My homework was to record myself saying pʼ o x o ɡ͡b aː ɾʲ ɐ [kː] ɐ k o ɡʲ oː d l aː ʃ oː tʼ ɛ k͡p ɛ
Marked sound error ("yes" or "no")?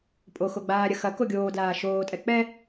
yes